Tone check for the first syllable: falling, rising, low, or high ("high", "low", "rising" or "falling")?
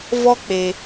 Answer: high